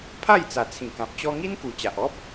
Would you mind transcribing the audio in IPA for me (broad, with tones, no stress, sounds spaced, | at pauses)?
pʰ a˥˧ j t͡s a˨˩ t͡sʰ ĩ˨˩ k ã˨ p̚ t͡ɕ ɔ˧ ŋ i˦ n k u˨˩ t͡ɕ a˨ ʔ ɔ˦ p̚